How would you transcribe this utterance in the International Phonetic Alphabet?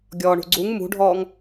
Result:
ɡʲ ɔː ɳ ṳ ɡ͡ǀ u ŋ m ṳ ɖʱ ɔː ŋ

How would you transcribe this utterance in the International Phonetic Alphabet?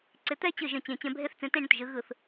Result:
ǀ ɪ˨˦ t̪ ɛ˥˧ t͡ɕ ɯ˥˩ ʒ ə̃˥˩ t͡ɕ ẽ˧˩˧ t͡ɕ ɛ̃˨˦ bʱ e˦˥ θ t͡s ẽ˨˦ t ẽ˥˧ ɳ ə̃˥˩ t ʒ ɯ˨˦ ɣ ɯ˧˩˧ θ

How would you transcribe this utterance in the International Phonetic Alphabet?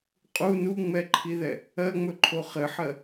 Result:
qʼ u n u ŋ͡m ɛ ǃʰ i ð ɛ | ɜ ŋ͡m ɵ ǃʰ o χ ɘ ħ ɜ

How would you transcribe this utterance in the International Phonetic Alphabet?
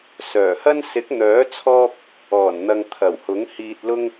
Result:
s œː˨˩ h ɐ˥ n s ɪ˨˥ k̚ n̪ œː˨˥ t͡sʰ ɔː˧ p̚ | ɔː˨˩ n n̪ ɐ˨ ŋ t̪ʰ ɐ˨˩ w h ʊ˨˥ ŋ h iː˨ t̚ l ʊ˧ ŋ

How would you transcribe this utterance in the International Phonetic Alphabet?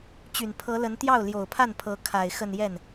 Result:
t͡ɕ y˨˩ n pʰ ɤ˧˥ l ə˧˥ n t̪ j ɑ˥˩ ʊ̯ l j o˨˩ ʊ̯ pʰ a˥˩ n pʰ ɤ˧˥ kʰ a˨˩ ɪ̯ x ə˥˧ n j ɛ˥˩ n

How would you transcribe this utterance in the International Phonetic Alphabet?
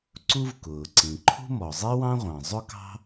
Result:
ǀ u˥ v k ʊː˩ ǀ ĩ˩ ǃʰ ṳ˥ m ɔ˩ zˤ i˥ w ɑ̃˥ ʁʷ ɑ̃˩ zˤ ʊ˥ k ɑ̤˥

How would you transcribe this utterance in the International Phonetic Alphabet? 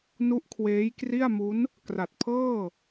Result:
n u˦˥ ʔ kʰ w eː˦˥ j k r i˥˩ a̯ m u˦˥ n | k r a˨˩ t̚ pʰ ɤː˥˩

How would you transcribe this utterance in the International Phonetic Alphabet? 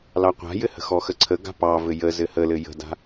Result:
l ɑ qʷ a̤ j ɘ h ə̤ x ɔ x ə ǀʰ ə ɡ a̤ p ɑ v ɘ j ə z ɘ h ə l ɘ j ə̤ d a̤

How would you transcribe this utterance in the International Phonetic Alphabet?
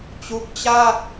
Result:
t͡ɕ u˦˥ k̚ t͡ɕ a˥˩ k̚

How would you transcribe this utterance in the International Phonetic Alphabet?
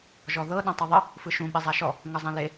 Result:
ʒ ɔ ð ɤ ɗ ã tˤ ʌ ðˤ ə | f ɯ ʃ ũ ɓ e zˤ a ʃ ɔ | ŋ ʌ zˤ ẽ l e

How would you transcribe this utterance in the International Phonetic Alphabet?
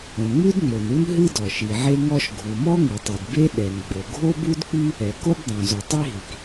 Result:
õ˩ ŋ͡m ʉ˥ d ŋ͡m o˩ n u˥ n ɦ ɨ˥ d ɔ˩ ʃ i˩ ʕ e˥ ŋ ɔ˥ ʃ ɡʱ u˩ m ɔ˥ ŋ ɨ˩ tˤ ʉ˩ d b e˥ ɗ ɛ˩ n ɡ͡b o˩ ɡʱ o˥ b u˥ d k͡p i˥ | ɛ˩ k o˥ b dˤ õ˩ z o˩ tˤ i˥ ɦ i˩ k

